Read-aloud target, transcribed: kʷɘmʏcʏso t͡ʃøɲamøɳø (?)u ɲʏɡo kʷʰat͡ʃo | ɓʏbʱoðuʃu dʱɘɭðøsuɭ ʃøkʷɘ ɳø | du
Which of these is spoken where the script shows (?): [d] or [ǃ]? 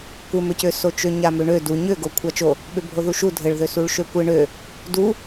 d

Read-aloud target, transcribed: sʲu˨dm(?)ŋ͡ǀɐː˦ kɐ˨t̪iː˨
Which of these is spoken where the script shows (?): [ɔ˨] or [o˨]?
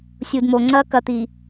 o˨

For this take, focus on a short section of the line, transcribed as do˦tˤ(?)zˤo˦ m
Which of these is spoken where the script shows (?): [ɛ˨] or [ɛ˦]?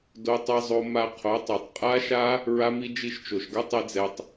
ɛ˦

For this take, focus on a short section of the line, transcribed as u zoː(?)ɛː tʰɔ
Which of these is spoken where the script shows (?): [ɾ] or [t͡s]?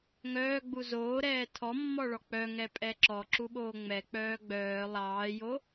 ɾ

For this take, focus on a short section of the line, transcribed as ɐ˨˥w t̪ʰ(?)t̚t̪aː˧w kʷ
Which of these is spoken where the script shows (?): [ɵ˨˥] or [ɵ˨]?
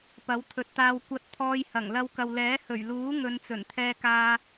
ɵ˨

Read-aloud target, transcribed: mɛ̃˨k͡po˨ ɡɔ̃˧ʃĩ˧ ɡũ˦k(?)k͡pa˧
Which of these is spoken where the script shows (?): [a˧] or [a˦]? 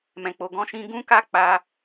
a˦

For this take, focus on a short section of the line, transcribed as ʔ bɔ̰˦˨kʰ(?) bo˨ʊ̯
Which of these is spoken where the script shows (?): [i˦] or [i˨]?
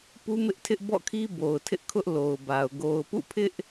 i˦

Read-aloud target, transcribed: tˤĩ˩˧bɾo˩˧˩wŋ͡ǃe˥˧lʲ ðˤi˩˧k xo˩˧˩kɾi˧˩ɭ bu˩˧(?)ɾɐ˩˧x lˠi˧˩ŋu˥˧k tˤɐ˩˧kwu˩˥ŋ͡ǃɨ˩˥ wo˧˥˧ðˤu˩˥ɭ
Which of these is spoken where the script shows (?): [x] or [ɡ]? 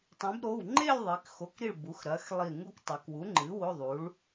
x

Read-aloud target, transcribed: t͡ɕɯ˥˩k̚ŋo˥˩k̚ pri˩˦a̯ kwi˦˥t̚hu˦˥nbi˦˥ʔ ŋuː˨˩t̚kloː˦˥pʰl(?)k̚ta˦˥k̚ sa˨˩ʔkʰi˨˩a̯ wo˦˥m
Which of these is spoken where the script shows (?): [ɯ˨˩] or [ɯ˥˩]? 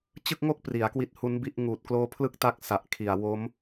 ɯ˥˩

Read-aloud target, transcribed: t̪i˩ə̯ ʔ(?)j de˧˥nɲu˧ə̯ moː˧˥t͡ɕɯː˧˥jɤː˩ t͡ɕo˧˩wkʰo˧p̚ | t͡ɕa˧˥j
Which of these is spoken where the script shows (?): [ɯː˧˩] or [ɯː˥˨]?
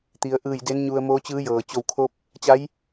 ɯː˧˩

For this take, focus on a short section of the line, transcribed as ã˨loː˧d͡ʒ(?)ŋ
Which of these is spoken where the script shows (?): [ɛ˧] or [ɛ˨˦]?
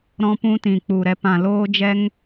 ɛ˧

